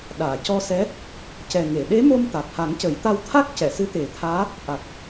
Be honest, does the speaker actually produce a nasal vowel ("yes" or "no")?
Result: no